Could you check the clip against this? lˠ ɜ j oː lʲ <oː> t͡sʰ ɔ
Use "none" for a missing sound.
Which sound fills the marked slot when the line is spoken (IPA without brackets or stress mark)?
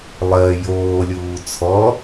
uː